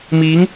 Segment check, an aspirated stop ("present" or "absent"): absent